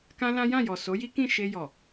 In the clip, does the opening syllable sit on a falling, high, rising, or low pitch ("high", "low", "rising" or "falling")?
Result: high